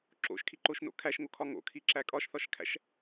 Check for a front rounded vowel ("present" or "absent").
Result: absent